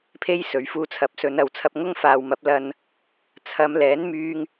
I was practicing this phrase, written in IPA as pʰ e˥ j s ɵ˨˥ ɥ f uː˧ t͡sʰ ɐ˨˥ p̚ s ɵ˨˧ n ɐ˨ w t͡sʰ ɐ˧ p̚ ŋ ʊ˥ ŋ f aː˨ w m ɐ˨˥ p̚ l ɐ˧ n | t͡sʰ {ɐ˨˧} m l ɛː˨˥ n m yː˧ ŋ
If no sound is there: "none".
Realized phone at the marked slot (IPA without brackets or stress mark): ɐ˨˧